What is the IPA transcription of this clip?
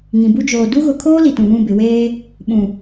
ŋ ĩ˨ b u˦ d͡ʒ oː˨ d u˦ ɣ ʊ˨ kʰ oː˦ l i˨ t ũ˨ β ũ˦˨ b ɪ˨ w eː˦ | ɓ ũ˨

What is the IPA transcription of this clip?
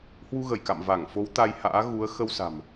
h w u˧ ɣ ə˧˩ j k a̰˧˨ m v a˧˩ ŋ f o˨˦ w t̪ a˧ j h a̰ː˧˥ ɣ u˨˦ ə̯ x ə˧ w s a̤˨˩ m

